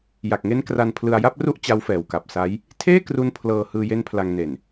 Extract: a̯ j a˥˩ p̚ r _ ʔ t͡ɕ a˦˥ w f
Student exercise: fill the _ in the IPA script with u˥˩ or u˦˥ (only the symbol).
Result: u˥˩